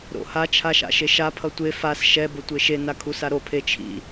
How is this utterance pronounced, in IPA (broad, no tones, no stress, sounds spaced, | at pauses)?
ɾ o̰ h a t͡ʃʰ a ʃ a̰ ʃ e ʃ a pʰ ʌ tʷ e f a s ʃ ɛ b o tʷ e ʃ e n a kʰ u s a ɾ o pʰ e t͡ʃʰ ḭ